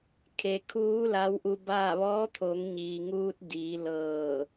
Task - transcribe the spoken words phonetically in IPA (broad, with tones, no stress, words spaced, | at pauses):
kʰe˩kʰuː˧˥ la˧˥wʔu˧baː˥˨ ʋɔː˧˥t̪ʰo˩˧ŋ ɲiː˩ŋuː˧t̚ diː˩˧lɤː˧˩